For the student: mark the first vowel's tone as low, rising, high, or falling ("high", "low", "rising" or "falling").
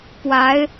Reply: rising